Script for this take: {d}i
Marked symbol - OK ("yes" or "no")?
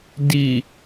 yes